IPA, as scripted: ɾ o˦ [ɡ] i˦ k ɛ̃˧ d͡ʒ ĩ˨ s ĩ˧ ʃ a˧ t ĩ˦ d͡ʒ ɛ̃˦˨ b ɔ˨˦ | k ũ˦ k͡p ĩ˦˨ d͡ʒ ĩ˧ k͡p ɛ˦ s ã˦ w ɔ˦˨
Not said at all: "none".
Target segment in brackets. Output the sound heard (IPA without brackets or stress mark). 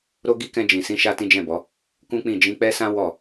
ɡ